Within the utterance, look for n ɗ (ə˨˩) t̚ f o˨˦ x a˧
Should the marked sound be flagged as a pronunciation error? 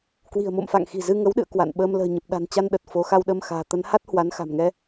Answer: no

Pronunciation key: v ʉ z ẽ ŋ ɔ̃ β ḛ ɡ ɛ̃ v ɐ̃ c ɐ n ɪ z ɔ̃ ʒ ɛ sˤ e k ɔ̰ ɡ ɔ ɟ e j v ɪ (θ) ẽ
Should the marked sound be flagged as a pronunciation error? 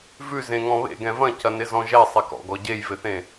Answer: no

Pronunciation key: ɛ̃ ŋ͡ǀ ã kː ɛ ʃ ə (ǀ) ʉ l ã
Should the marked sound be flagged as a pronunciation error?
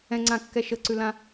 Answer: no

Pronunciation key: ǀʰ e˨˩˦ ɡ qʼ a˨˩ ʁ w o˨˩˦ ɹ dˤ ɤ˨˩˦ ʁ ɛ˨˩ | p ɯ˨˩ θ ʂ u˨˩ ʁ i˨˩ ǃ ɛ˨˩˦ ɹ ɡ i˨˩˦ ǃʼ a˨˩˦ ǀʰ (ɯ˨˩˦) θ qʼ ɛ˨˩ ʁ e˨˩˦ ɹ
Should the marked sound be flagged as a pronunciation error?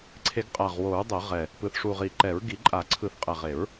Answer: no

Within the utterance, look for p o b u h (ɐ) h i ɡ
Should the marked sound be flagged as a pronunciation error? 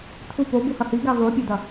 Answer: no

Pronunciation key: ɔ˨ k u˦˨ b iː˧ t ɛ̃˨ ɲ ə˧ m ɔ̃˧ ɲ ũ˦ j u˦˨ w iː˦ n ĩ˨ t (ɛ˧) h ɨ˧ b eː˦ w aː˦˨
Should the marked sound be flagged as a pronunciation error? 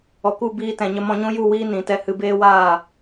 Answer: no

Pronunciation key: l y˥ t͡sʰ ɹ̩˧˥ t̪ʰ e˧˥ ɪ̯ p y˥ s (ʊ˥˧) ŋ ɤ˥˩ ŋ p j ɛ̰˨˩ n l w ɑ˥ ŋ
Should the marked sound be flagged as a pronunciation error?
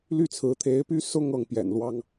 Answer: no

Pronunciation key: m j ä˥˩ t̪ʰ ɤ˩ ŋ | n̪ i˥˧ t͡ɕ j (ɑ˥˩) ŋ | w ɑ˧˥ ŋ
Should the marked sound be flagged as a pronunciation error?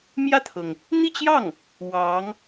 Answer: no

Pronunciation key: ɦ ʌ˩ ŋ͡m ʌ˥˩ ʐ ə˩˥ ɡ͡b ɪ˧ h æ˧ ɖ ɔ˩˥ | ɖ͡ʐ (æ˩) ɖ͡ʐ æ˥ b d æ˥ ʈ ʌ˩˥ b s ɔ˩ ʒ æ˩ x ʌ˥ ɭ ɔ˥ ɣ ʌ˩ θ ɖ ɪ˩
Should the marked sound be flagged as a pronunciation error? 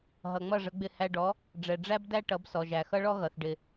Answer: yes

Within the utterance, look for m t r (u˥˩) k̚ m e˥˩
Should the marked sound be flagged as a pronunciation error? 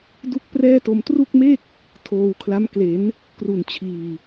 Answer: no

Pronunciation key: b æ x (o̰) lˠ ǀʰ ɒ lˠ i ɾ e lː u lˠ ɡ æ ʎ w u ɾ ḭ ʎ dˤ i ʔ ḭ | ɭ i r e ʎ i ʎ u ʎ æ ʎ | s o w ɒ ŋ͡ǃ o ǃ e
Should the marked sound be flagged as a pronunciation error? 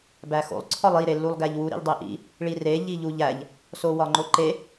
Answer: no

